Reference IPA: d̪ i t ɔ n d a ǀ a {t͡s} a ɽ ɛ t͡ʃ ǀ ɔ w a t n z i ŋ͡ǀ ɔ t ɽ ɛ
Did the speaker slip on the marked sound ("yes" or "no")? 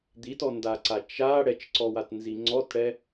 yes